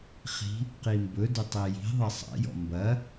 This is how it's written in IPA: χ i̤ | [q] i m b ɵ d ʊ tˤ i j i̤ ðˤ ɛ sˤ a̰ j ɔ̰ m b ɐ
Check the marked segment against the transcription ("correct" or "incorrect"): correct